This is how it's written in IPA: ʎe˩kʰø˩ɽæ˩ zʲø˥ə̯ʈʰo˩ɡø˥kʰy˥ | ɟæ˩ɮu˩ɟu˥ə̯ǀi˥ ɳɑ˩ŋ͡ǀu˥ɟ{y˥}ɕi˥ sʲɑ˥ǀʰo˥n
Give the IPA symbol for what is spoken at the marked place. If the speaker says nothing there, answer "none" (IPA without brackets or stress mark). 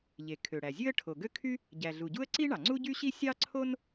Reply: y˥